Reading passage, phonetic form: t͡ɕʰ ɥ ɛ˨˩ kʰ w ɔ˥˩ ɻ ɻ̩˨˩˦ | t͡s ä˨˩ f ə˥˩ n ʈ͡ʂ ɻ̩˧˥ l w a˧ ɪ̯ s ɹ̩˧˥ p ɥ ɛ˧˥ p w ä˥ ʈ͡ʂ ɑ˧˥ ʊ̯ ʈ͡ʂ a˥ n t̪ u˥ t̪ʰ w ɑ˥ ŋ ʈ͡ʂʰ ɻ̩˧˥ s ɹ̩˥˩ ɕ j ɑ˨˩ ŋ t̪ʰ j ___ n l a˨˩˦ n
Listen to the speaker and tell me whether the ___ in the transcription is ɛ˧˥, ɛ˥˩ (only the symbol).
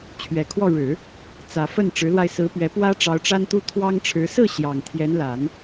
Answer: ɛ˧˥